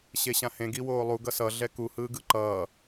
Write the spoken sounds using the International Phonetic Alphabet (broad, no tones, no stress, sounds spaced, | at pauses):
ɕ e ɕ ã h ẽ ɡ i w oː lˠ u ɡ ʌ s ʌ ɮ ɛ k u h ɯː ɡ ɯ ǃ ʌː